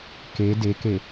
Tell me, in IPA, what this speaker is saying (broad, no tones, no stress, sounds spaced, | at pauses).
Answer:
k e d e k e